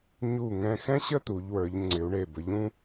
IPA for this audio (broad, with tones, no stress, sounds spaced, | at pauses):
ɲ u˧˩ ŋ ɛ̃˧ x ɛ̃˥ ɕ ə˥˧ t̪ u˩˧ ʎ w ə˞˩˧ ʎ ŋ͡ǀ ɪ˩˧ u̯ ɳ e˧˩ b ə˩˧ ʎ ũ˥